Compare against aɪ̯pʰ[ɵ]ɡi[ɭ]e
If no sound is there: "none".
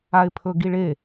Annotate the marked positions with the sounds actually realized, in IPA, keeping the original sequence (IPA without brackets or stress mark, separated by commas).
ɵ, ɭ